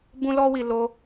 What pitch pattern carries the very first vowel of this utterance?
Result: high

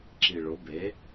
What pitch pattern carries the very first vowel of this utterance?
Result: low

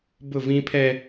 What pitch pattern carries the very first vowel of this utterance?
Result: falling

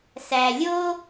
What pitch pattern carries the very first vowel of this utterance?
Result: low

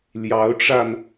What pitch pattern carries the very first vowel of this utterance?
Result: rising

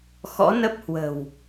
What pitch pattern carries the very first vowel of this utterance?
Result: rising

